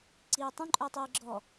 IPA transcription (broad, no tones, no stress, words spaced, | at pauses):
ǀiːtˤũ ǃʼœtˤiːɡ͡ǁɔ